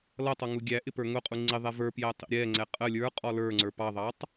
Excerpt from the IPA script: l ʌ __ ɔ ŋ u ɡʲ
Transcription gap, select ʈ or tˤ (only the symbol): tˤ